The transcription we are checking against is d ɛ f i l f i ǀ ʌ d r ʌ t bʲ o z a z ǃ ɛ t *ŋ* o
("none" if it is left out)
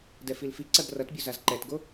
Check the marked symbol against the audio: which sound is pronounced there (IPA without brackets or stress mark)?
ɡ